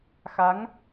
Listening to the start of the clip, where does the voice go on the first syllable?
rising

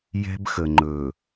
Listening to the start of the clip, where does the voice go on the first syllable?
high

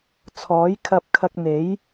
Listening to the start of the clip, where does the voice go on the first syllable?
rising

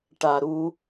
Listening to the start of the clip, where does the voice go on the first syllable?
low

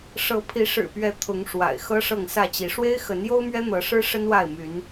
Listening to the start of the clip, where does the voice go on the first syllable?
rising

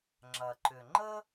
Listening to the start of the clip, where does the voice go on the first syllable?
low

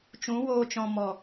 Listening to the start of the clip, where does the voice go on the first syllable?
rising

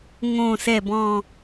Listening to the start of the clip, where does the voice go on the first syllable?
low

